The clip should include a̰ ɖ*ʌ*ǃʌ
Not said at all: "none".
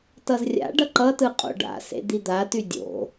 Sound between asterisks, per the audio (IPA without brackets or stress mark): ʌ